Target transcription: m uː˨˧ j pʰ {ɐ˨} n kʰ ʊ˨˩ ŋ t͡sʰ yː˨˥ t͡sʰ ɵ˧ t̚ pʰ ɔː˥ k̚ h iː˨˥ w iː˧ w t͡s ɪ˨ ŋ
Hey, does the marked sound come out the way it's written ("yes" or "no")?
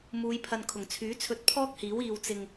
yes